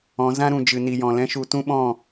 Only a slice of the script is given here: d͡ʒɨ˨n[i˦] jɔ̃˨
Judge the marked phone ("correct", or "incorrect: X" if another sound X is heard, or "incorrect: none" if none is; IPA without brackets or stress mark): incorrect: i˨